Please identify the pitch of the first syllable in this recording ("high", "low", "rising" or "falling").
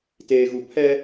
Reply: low